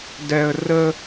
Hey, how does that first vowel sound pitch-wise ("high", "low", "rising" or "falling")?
high